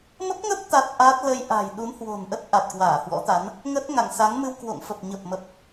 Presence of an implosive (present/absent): present